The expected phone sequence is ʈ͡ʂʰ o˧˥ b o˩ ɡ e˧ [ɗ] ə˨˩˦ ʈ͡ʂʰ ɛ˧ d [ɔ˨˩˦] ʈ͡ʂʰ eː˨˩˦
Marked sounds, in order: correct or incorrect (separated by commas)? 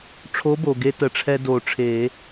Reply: incorrect, incorrect